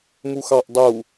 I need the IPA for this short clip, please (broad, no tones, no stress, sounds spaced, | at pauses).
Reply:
m u x ɑ ʔ dˤ u